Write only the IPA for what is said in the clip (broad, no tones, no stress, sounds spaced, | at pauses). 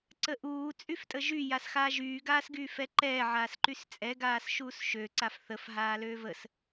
ǀ ə ʔ uː t͡sʼ y f tʼ ə ʒ y j a s x aː ʒ yː ɡ aː s ɡ yː f ɛ ǃ ɛː ʕ aː s ǃ y s t͡sʼ ɛ ɡ aː s ʃ uː s ʃ ø ǀ a f θ ə f ɦ aː l øː v ə s